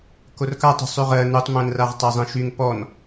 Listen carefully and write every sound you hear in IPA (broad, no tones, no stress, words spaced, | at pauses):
korkatˤṳ sˤyʁɜ nutˤmæ̃nraʁ tˤæzˤẽʃyŋ pɔn